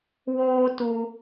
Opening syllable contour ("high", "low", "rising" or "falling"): high